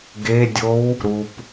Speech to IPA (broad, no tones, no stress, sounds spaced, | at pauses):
ɡ e dʲ o w | ɾ u p